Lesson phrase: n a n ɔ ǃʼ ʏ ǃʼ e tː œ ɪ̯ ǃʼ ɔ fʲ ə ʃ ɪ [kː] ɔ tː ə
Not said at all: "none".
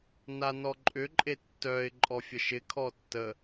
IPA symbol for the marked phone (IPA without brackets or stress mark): kʰ